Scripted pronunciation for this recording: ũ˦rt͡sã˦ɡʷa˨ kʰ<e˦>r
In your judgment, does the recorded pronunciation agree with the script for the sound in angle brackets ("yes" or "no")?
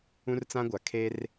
yes